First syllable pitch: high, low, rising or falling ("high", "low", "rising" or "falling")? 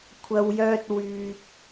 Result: low